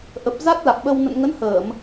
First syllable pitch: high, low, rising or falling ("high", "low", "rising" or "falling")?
low